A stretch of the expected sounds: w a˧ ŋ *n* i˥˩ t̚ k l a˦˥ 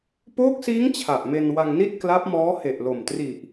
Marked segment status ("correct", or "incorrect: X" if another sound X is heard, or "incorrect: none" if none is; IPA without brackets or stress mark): correct